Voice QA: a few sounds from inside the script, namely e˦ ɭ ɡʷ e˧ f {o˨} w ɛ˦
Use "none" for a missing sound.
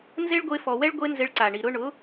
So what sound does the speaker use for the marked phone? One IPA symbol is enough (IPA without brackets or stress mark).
ɔ˨